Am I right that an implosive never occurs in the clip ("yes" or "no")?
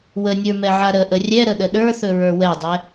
no